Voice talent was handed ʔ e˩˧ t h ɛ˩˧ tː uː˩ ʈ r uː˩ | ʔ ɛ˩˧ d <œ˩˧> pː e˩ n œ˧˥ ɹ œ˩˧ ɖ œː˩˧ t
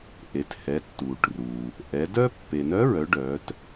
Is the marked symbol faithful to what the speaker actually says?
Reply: no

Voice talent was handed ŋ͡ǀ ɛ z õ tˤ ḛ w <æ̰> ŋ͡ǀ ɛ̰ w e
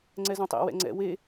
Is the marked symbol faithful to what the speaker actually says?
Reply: no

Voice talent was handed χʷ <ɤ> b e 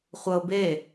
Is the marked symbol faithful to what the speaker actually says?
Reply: yes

